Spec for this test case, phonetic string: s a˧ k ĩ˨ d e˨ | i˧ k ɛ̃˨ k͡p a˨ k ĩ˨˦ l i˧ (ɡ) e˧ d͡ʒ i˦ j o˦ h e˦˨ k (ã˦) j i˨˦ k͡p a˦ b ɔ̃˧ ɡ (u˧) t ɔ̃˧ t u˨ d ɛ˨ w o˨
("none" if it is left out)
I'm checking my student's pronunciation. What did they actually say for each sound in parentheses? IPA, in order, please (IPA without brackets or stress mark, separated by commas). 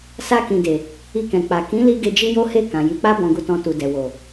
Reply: ɡ, ã˨, u˧